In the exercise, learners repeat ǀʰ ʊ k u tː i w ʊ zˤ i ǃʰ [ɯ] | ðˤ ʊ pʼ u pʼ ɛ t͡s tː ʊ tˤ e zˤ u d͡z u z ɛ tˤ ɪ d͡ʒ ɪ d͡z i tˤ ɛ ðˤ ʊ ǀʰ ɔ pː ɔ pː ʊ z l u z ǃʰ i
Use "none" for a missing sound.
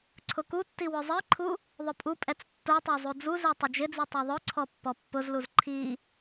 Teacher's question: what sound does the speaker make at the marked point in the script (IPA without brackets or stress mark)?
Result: u